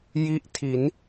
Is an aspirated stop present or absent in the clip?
present